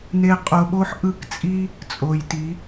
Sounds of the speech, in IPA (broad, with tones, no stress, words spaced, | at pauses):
ne˧ qʼo˧ɓo˦ħʔɯ˦˨kt͡sʼi˦ | t͡sʼo˨j ti˨˦